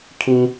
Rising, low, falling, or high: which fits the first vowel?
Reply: high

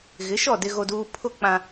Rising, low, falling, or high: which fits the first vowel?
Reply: rising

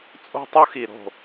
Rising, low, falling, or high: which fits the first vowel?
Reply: high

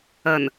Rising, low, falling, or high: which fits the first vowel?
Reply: low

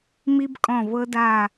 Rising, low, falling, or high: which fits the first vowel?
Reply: high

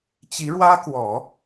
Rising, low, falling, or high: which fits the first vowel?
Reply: rising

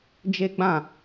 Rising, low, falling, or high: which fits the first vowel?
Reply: high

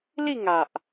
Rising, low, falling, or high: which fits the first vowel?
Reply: falling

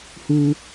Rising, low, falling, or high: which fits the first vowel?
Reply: high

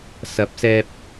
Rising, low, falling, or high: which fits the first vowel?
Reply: rising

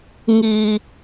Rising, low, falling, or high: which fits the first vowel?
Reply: low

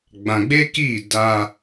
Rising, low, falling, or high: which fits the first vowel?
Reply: low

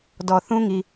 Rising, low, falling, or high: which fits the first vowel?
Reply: low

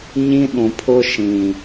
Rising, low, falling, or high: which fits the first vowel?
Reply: high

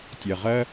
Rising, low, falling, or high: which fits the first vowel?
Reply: low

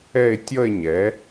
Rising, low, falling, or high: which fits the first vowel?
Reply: falling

